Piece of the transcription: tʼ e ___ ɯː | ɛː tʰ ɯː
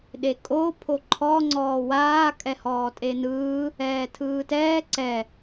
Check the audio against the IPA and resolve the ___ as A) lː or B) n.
B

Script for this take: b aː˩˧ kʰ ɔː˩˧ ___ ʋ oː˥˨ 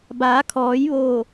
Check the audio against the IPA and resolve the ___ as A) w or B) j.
B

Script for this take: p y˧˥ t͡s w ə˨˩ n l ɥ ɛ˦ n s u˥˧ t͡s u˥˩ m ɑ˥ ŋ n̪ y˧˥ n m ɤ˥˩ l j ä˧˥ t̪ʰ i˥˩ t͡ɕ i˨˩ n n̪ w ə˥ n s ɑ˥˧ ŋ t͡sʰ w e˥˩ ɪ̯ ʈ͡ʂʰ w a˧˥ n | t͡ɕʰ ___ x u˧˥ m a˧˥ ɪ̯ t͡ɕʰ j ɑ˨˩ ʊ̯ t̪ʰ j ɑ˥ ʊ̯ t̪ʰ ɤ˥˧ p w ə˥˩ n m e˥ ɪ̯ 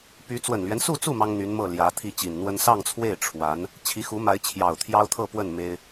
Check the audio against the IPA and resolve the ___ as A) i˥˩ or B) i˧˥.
B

